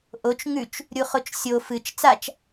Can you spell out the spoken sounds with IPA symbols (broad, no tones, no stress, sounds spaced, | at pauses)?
ʔ o t͡ʃ ŋ ʉ t͡ʃ | ɾʲ u χ o t͡ʃ sʲ o f ɨ t͡ʃ t͡s a t͡ʃ